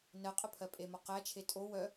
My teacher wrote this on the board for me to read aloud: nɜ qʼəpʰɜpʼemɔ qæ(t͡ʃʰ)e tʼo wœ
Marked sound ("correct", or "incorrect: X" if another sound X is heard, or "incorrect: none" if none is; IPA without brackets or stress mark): correct